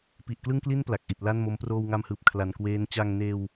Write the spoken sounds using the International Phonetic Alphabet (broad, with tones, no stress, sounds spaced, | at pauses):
p i˨˩ ʔ k l ɯ˥˩ ŋ k l i˥˩ n p l a˨˩ k̚ ʔ i˨˩ t̚ l a˥˩ n m o˦˥ m p r oː˧ w ŋ a˧ m h ɯː˨˩ p̚ kʰ l a˨˩ n k w eː˦˥ n t͡ɕ a˧ ŋ n eː˧ w